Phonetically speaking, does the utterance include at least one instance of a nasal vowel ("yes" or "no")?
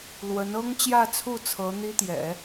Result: no